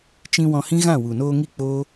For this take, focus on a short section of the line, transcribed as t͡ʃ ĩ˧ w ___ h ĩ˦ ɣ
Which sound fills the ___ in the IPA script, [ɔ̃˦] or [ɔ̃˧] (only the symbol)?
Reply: ɔ̃˧